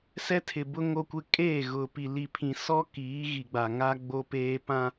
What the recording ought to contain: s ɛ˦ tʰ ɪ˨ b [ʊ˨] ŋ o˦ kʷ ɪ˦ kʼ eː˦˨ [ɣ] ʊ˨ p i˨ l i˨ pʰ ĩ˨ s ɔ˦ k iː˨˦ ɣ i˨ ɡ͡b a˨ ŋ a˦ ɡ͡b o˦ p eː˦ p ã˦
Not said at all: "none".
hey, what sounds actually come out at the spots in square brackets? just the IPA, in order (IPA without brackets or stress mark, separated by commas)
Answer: ʊ˦, ɣ